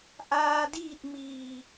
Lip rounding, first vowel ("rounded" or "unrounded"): unrounded